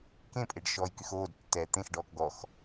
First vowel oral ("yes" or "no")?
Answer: no